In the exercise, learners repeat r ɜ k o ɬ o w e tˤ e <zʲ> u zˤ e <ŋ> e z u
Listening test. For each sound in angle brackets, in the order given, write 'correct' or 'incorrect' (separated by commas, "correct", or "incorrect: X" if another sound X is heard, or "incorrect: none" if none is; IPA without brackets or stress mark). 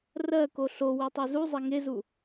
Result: incorrect: z, correct